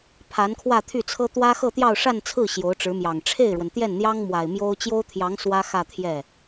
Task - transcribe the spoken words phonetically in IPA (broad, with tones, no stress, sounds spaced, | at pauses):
pʰ a˧˥ n kʰ w ä˥˧ t̪ʰ y˥˩ t͡sʰ ɤ˥ t̪ w ä˥ x ɤ˥˧ t̪ j ɑ˥˧ ʊ̯ ʂ a˥˧ n t͡sʰ ɹ̩˥˩ ɕ j o˧˥ ʊ̯ ʈ͡ʂ ɻ̩˧˥ m j ɑ˨˩ ŋ ʈ͡ʂʰ e˥˩ ɪ̯ ɻ w ə˩ n t̪ j ɛ˥˩ n n̪ j ɑ˥ ŋ m w a˨˩ ɪ̯ m j o˥ ʊ̯ t͡ɕ j o˥ ʊ̯ t̪ʰ j ɑ˧˥ ŋ s w ä˥ x ä˥˧ t̪ʰ j ɛ˥˩